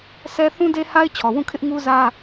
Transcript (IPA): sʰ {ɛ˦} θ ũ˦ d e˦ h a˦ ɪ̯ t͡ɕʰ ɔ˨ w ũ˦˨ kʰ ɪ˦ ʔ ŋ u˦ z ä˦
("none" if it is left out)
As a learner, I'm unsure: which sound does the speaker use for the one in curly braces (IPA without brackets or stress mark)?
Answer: ɛ˦